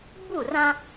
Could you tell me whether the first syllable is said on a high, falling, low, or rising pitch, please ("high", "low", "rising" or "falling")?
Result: falling